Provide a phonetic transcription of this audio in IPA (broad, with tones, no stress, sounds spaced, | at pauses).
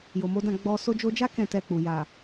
j o˨ m o˨˦ d ã˦˨ ɡ͡b ɔ˧ s o˧ d͡ʒ o˧ d͡ʒ a˦ k ɛ̃˦˨ t ɛ˧ k͡p u˨ j a˨